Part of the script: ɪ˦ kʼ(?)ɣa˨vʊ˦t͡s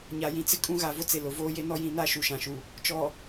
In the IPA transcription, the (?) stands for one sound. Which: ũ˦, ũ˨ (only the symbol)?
ũ˦